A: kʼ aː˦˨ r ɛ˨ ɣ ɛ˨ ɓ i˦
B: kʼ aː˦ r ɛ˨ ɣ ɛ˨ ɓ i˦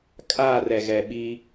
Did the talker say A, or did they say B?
A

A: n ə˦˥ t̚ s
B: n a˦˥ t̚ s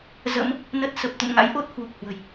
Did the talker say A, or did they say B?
A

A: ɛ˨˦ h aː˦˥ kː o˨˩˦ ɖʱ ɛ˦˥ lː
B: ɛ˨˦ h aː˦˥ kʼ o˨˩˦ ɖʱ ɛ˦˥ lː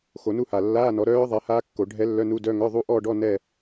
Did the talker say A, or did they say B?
A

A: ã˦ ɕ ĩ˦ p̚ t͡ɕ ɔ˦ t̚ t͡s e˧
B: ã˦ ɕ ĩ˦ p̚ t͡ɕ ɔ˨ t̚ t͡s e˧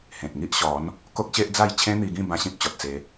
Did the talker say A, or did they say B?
B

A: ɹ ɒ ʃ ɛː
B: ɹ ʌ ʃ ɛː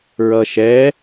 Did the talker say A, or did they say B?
B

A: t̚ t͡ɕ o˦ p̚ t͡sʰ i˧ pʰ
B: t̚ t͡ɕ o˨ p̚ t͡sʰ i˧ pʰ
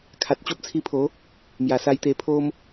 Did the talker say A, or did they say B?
A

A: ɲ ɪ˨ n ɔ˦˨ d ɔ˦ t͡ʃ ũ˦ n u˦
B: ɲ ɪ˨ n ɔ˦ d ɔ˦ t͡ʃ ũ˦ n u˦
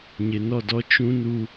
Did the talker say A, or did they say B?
A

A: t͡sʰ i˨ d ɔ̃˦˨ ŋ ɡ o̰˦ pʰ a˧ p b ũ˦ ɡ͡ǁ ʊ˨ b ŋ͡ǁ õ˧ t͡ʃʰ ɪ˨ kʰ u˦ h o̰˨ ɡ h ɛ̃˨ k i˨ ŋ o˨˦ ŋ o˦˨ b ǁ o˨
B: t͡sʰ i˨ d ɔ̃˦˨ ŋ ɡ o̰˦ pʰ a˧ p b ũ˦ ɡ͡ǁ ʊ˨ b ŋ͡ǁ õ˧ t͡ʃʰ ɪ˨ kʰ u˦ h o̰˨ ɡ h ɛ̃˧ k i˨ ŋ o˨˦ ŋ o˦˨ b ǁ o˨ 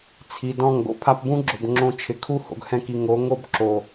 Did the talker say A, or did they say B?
B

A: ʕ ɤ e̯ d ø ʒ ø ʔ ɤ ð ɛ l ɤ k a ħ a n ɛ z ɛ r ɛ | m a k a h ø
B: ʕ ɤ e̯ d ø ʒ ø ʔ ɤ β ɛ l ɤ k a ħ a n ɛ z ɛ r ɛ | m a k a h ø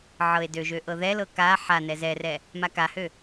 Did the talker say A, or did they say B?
A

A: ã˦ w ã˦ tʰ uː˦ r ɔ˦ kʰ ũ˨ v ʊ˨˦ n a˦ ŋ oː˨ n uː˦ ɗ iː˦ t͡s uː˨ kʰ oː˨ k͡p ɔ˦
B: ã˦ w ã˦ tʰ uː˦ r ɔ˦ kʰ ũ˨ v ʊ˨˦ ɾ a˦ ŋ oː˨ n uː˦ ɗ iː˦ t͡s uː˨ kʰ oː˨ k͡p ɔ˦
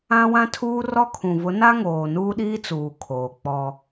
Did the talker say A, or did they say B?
A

